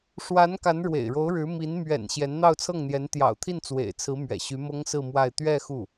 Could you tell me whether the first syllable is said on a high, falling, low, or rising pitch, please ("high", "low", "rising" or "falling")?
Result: rising